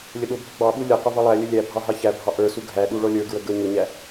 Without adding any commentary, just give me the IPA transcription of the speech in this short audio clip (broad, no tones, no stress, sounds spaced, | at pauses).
lʲ ə ɗ ʊ bʱ ə ɡ͡b ɑ ɓ u lʲ ʌ q ʊ v ʌ lˠ æ lʲ ə lʲ æ bʱ ɑ ɦ ɑ ç æ bʱ ɑ ʔ ə˞ s u ɡʱ æ ɗ u ɭ ɔ lʲ ə˞ ɡ ɹ ə ɡ ə˞ ɲ ʊ ɲ æ